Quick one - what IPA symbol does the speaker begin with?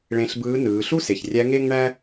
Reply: ɭ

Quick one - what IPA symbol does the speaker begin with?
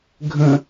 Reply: ɡʱ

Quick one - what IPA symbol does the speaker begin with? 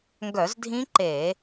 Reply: ŋ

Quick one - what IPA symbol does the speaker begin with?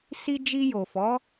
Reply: s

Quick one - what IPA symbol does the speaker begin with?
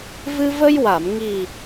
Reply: v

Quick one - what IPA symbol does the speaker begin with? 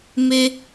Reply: m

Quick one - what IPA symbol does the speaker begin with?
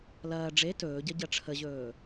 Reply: l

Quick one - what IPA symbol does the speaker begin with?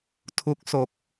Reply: tʰ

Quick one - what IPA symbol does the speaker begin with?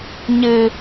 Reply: ɲ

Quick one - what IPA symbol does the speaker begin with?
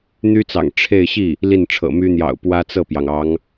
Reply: n̪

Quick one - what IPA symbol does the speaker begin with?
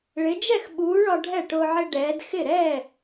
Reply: ɭ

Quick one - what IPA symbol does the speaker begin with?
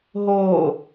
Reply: ɦ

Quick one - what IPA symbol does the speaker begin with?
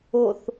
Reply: o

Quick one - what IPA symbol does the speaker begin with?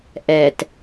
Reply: ʔ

